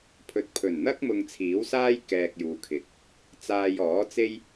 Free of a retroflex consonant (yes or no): yes